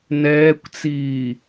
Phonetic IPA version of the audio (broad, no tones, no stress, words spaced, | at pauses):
nɛːkʷt͡siː